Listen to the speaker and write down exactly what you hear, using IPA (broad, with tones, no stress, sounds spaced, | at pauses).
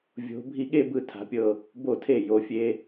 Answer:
vʲ o̤˩˧ bʱ i˧˩ ɠ e˥˧ b ɯ˧˩ tʰ a̤˩˧ pʲ ɤ˧˩ | b o˧˩ tʰ e˧˩ j o˩˧ fʲ e˧